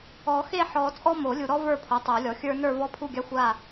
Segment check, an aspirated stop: present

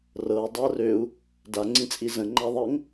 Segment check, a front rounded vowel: present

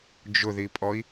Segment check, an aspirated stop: absent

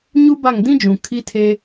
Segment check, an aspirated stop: present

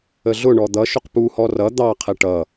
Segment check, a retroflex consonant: present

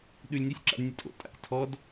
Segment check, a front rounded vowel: absent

